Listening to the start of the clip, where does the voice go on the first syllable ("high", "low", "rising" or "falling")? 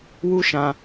high